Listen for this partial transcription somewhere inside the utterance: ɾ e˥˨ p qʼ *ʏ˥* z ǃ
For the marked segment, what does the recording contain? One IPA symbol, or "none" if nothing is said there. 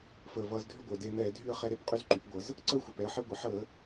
y˥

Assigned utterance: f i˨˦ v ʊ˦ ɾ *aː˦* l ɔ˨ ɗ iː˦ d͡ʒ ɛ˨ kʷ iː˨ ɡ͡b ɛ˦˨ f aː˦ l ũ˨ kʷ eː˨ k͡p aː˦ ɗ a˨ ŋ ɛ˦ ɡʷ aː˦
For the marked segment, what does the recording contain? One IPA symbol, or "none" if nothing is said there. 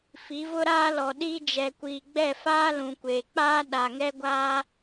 aː˦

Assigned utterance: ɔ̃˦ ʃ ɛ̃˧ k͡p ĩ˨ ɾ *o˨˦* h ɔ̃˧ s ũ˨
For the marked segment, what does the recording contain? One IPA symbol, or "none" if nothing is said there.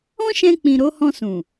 o˨˦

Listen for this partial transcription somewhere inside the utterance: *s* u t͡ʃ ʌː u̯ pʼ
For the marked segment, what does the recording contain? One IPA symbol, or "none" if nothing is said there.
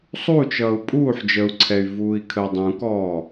sˤ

